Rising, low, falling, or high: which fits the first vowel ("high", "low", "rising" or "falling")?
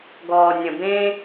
low